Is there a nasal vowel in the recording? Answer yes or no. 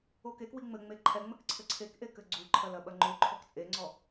no